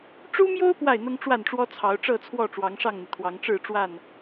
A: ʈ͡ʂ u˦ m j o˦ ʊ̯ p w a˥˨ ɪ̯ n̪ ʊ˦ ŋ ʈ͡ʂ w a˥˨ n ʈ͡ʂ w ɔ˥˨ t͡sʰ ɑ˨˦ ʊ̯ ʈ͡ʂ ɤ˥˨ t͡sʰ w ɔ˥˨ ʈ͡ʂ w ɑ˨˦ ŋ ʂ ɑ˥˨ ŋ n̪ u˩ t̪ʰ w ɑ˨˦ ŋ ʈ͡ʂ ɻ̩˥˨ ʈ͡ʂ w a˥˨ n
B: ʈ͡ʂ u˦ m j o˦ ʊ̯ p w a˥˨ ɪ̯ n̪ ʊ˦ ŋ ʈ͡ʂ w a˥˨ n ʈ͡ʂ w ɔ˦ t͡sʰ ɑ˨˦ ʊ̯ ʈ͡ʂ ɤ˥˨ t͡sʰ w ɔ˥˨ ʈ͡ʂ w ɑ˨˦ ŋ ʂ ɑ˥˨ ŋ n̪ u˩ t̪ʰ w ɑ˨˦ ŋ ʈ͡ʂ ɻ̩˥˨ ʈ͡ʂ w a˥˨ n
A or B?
B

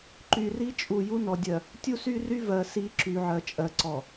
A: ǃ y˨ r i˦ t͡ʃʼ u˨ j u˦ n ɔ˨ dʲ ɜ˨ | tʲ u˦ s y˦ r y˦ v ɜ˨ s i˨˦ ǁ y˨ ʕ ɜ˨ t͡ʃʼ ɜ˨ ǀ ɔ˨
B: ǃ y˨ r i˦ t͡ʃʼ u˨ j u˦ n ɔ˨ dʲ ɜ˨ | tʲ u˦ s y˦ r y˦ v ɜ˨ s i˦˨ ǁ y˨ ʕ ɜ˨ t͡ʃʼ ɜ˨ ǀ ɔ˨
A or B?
A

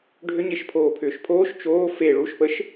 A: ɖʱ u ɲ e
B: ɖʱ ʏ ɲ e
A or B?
B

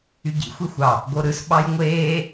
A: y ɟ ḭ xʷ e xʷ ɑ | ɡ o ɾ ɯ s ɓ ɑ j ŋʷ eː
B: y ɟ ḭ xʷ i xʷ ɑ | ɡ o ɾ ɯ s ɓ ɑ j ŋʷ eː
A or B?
B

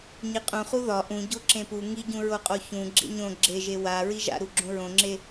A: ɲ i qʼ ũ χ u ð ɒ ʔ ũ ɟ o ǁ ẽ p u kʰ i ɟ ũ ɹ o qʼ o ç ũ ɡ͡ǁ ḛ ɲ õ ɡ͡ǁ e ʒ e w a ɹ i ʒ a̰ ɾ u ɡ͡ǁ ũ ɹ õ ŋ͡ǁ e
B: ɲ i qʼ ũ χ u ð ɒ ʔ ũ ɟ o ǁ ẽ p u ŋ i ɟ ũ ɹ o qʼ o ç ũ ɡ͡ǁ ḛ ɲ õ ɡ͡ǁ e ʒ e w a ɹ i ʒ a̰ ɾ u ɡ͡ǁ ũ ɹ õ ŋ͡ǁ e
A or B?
B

